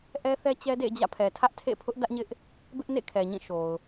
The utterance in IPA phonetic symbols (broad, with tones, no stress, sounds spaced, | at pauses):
ʔ ɛ˦ θ ɛ˦ t͡ɕ ɛ˦ d ḛ˦˨ d͡ʑ ä̰˦˨ pʰ ɛ˨ tʰ ä˦ ʔ tʰ ḛ˦˨ pʰ ʊ˦ ʔ d ä˦ ʔ ɲ ɪ˦ ʔ | b ɪ˦ ʔ n ḛ˦˨ kʰ ɛ˨ ɲ ĩ˦˨ ʃ o˨ ʊ̯